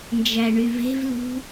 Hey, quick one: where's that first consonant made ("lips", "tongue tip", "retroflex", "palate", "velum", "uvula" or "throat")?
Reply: tongue tip